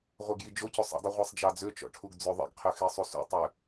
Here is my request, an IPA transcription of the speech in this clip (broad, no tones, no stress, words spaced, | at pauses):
ʁʷɛɡjid͡ʒocosˤ ɛ̰dˤi ʁʷesˤd͡ʒɑd͡zøt͡ʃɔ̰ ʈʰuɡd͡zøðˤɛ̰ɡqʰø xesˤusṵtˤø